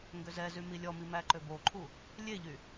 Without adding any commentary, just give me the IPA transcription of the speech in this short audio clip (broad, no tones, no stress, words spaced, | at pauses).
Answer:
ŋɡøzɛzy milʲɔmi mæǃøboǃʰu | lʲeʎy